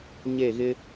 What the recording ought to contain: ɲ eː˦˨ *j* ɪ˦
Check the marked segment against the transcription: incorrect: ɣ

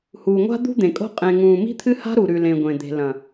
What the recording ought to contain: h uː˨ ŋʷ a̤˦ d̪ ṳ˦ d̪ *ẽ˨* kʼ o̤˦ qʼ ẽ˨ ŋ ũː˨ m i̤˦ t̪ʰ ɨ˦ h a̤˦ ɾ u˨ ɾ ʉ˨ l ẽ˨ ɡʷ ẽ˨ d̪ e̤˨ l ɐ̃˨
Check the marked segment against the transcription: correct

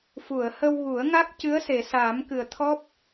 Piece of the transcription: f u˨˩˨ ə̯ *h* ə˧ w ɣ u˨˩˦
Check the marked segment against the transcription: correct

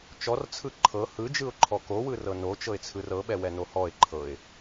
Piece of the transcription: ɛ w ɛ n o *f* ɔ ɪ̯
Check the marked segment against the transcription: incorrect: h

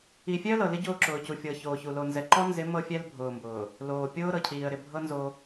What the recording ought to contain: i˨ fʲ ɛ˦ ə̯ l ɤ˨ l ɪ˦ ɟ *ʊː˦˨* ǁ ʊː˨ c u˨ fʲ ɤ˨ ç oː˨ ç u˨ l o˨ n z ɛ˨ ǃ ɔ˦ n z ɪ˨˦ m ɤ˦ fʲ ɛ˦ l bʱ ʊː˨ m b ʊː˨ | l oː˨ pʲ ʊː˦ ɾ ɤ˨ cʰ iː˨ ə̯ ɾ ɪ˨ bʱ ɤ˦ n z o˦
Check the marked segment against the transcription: correct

